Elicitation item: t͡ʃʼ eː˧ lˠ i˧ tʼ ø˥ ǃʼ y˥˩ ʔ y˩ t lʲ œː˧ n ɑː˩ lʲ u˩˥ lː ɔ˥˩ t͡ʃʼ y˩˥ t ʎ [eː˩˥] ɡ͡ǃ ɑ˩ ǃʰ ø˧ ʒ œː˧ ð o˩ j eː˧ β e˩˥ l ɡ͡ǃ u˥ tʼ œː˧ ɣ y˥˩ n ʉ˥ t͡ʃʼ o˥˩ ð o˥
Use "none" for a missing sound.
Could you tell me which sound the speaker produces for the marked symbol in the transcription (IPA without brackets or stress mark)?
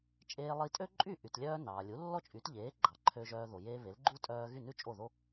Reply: eː˩˥